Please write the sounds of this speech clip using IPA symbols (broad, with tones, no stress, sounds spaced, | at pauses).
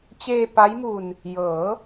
t͡ɕ eː˧ p a˦˥ j m u˧ n | j ɤː˩˦